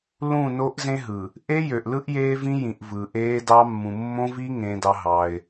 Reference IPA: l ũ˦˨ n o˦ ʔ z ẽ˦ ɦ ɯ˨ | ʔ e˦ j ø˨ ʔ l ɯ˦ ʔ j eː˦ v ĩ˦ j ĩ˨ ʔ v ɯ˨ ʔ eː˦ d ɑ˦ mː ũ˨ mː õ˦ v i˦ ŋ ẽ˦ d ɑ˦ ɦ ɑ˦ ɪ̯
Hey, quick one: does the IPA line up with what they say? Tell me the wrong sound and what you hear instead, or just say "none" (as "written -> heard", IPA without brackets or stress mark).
none